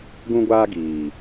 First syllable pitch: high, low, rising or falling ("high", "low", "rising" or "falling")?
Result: high